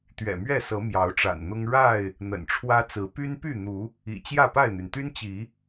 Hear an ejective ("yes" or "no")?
no